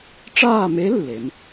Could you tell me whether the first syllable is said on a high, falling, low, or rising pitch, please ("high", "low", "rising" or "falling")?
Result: falling